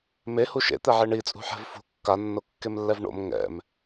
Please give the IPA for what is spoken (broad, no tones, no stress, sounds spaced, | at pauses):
m e h u ʃ ḛ t̪ ɛ ʕ e ɳ i t͡sʼ ṳ ħ ɛ̤ v f ṳ kː a nː o kː e m lː ɛ v ɳ o̰ m ŋ ɛ̰ m